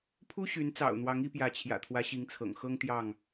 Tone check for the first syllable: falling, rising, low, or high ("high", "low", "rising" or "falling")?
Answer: high